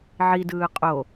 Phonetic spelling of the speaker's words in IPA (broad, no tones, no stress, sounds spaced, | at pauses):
ʕ i d ɯː qʼ o